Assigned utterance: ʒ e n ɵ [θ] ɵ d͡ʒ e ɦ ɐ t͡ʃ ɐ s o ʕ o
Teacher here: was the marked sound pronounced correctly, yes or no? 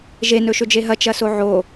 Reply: no